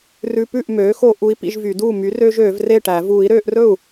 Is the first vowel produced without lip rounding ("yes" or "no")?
no